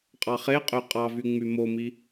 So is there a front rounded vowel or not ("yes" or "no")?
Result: yes